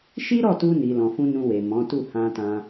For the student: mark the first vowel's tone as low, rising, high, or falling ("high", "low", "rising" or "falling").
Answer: high